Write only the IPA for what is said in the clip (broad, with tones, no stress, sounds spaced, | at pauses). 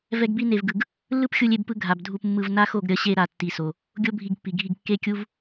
v ɛ˧ ɡ b i˧ n e˨ v ɡ ɯ˨ ɡ | lː ɯ˦ p xʲ u˧ lʲ e˧ b p ɯ˧ ɡʱ a˨ b dʱ u˧ p mː ɯ˧ v n a˦ x o˦˨ ɡ ɾʲ ʌ˧ ɕ e˧ ɾ a˨ tː i˨ s o˨ | ɡʲ o˦ bʱ i˧ ɡ pː i˨ ɡʱ i˧ ɡ kː e˦ kʲ u˦ v